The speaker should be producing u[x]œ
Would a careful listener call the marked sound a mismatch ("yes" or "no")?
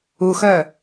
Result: no